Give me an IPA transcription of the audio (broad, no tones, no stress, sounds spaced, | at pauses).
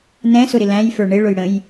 n ɛ̃ s ʊ ɾ ɪ l æ̃ j f ə˞ ɳ ɪ ɭ ʊ j ɽ ə̃ j